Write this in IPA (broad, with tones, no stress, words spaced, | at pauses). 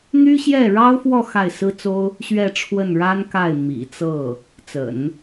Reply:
n̪y˥ɕjɛ˥˩ ɻɑ˥ʊ̯fwɔ˥˧ xa˥˩ɪ̯sɹ̩˥t͡so˥ʊ̯ | ɕɥɛ˥˧ʈ͡ʂʰwə˥˩nɻa˥n ka˥˩ɪ̯ mḭ˨˩t͡sɤ˥˩ | t͡sə̰˨˩˦n